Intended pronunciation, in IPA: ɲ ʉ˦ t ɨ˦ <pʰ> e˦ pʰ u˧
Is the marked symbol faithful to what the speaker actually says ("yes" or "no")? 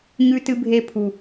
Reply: no